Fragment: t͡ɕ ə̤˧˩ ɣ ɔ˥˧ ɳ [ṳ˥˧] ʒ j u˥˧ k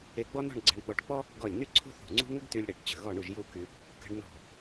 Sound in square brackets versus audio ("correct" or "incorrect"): incorrect